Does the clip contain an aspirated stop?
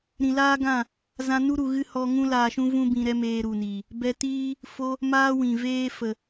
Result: no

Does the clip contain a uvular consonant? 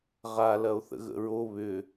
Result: yes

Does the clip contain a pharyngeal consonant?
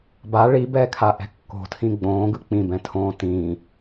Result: no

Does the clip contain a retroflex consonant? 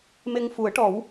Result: yes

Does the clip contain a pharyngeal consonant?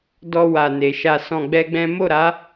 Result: no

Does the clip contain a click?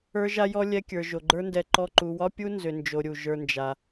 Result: yes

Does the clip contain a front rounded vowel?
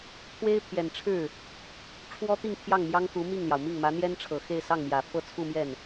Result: no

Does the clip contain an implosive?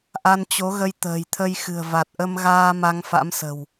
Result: no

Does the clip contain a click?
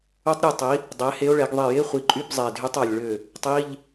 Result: yes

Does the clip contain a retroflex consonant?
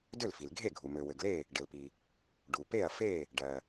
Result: yes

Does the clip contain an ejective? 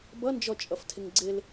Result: yes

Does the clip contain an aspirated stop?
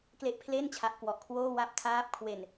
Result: yes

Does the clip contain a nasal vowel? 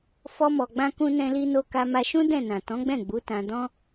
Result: yes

